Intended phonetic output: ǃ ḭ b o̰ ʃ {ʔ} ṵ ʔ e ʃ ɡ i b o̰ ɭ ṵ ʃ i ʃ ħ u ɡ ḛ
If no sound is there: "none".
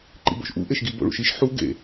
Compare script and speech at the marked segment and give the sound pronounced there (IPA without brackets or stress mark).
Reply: ʔ